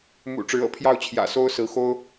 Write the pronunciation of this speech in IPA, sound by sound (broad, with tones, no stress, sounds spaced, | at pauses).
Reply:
m ṵ˨˩ ʈ͡ʂ ɻ̩˧˥ ɤ̰˨˩ pʰ j ɑ˥˩ ʊ̯ t͡ɕʰ j ä̰˨˩ s o˥ ʊ̯ s ɹ̩˧˥ x o˥ ʊ̯